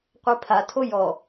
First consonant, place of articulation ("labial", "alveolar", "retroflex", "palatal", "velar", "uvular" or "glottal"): uvular